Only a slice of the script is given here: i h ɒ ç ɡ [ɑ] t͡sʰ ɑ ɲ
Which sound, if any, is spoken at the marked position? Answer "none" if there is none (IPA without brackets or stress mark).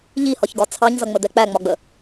ɒ